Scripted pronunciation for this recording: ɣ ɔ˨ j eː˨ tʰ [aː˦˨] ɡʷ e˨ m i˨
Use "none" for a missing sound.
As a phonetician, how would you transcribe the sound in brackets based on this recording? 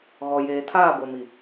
aː˦˨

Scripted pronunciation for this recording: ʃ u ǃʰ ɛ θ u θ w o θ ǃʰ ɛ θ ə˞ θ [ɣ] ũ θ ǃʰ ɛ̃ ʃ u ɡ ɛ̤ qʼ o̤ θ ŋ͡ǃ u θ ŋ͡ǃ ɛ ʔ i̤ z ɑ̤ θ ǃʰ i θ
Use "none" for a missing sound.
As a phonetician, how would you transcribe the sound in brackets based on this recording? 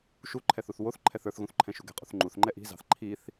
ɣ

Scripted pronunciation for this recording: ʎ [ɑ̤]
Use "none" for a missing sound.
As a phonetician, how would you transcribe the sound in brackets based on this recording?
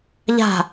a̤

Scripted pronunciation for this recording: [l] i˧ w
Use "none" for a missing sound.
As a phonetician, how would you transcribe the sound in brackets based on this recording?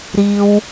ɾ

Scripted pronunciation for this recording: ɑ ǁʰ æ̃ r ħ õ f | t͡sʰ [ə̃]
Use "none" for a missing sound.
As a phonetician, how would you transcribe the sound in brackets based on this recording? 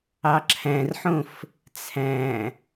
æ̃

